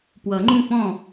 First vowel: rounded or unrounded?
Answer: unrounded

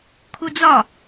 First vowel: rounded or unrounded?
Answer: rounded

